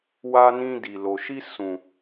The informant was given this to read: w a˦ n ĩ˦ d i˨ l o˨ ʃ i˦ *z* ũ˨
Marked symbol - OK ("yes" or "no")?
no